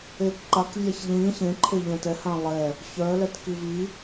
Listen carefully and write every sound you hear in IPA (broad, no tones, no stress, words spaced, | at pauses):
ekǃak vʲaçʎĩ çẽǃʰeʎɛ̃ tɛhã lˠɛ | çœlɛt kivi